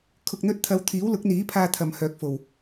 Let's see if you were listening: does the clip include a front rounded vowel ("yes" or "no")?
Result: yes